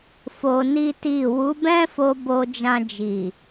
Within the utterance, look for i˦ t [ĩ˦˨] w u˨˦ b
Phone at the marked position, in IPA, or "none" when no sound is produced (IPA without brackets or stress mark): i˦˨